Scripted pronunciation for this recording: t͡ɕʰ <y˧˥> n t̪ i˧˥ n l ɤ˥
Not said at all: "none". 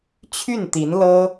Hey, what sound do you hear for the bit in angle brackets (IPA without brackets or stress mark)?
y˥˩